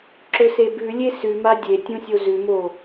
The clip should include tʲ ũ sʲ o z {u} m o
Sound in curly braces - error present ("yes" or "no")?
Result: yes